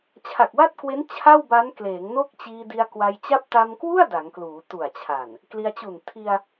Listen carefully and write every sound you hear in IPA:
t͡ɕʰa˨˩k̚wa˥˩t̚kwe˦˥n t͡ɕʰa˥˩wba˦˥nkleː˩˦ŋno˥˩k̚ t͡ɕiː˧di˧a̯kwa˧j t͡ɕa˦˥p̚ta˧mkwu˥˩a̯ da˩˦ŋkluː˩˦tu˨˩a̯t͡ɕʰa˨˩n | kli˧a̯t͡ɕu˨˩n tʰi˧a̯

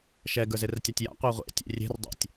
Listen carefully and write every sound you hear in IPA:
ʃɛ ɡə˞zertʲatʲja̰ qʷəːʁʷḛ tʲḛrʲe̤r dˤḛtʲ

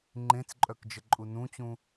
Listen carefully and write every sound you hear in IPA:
ŋ͡ǃẽt͡sǃʼœkd͡ʒəǃʼu nũt͡ɕũ

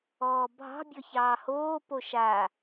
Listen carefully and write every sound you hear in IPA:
ɔːbʱɑ̤ bʲɔçɑːhoː poʃa

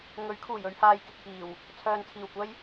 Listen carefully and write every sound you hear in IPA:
ŋɵ˨˥ɥkʰuː˨˩j ɵ˧ɥhaː˨jkɪ˨k̚fiː˨˩w | t͡sʰœː˨nt͡sʰiː˨˩wkʷɐ˥j

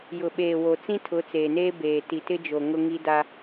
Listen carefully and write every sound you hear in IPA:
jʊ˨ɓeː˨wo˨ t͡sĩ˦tʰʊ˨˦t͡seː˨neː˦ beː˨ ti˨tɪ˦d͡ʒo˨ŋʊ˦ ŋi˦da˦

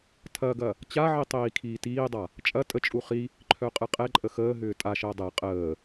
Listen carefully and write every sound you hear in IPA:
tʰɐɡɐ | t͡ɕaʕi tˤiːkʰiːtiːdˤa | t͡ʃʼɐ tʼət͡ʃʼu χi | ǃʰœqʼɯqʼɛǃʼə xəː ɦʏːtʼaʃəː dˤɛ qʼəː

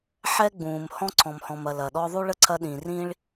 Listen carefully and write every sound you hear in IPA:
ħɛ˥ɡ͡bũː˩m hɔ̃˥ǀʰɔ̃˨mhɔ̃˨mɐ˨ lɐ˩ɗɔ˦ðˤu˥ ɭə˥ǀʰɐ˦ɗĩ˨rĩ˥ɭ

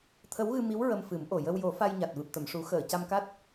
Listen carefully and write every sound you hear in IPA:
t̪ʰə˧˥wɣɨ˧mi˧˥w ɹə˧mfɨ˨˩˦mʔo˨˩ jə˧wjo˨˩˦ fa˧jɲa˨˩t̚ vɨ˨˩p̚t̪ə˨˩˨m ʂu˨˩˦xəː˨˩˨ ca˧mka˦˥t̚

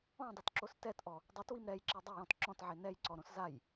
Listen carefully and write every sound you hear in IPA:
ɔ̃dˤitǁos tɛtʔɔ | dˤitwim ɾɛjǁi dˤɪjɔ̃t ǁɔ̃tʕe nɛjǀɔɾõs zaj

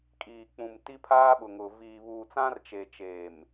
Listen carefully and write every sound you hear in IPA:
kʼiː˨k͡pũ˨m ti˦pʰaː˦ɓʊ˨ŋʊ˨ viː˨βuː˨t͡sã˦r t͡ʃe˨t͡ʃeː˨m

